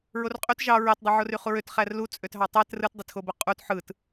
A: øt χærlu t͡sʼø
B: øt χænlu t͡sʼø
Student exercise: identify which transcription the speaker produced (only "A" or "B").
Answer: A